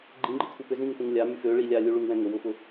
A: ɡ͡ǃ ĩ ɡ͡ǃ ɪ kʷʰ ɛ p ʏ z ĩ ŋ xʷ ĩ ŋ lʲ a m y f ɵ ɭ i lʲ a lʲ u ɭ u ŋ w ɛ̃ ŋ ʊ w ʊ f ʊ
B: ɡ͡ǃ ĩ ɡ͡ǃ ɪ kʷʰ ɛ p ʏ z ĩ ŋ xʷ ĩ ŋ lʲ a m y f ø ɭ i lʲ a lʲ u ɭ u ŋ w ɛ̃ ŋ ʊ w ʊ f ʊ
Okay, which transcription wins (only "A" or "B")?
B